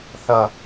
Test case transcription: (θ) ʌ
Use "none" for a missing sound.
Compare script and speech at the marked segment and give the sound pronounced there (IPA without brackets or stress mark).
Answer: θ